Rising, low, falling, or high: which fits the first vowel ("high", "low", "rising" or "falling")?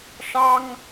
high